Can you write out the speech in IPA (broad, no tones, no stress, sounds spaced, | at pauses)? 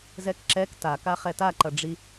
z ɛ k ǁ ɛ k t a k a χ ɛ t a ǃ ʌ ɖ͡ʐ i